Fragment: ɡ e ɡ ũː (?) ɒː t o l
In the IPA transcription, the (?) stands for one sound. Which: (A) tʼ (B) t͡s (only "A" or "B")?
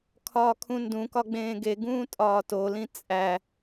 A